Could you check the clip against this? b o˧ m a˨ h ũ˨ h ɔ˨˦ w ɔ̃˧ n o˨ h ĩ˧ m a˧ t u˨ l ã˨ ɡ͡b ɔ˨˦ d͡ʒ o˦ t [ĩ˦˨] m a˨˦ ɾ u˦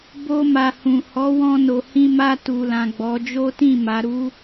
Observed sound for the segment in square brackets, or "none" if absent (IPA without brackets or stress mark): ĩ˦˨